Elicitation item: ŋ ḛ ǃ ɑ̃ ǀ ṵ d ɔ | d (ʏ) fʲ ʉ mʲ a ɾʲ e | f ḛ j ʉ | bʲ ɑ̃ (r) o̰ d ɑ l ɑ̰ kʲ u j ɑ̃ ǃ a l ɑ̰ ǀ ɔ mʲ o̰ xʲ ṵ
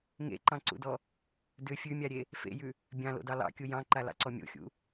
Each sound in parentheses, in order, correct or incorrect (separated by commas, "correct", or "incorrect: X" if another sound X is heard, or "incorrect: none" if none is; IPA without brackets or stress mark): correct, incorrect: l